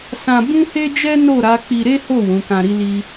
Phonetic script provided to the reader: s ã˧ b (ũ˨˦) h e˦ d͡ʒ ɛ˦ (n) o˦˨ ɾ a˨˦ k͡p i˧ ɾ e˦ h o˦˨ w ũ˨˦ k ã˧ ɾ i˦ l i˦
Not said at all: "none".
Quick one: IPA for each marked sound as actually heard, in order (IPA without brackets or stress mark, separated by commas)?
ũ˦, n